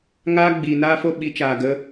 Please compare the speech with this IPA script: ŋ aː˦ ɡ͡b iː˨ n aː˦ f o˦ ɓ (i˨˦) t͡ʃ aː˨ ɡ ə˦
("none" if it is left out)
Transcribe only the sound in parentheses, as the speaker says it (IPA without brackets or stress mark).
i˨˦